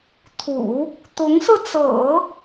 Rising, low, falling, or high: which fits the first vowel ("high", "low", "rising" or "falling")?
low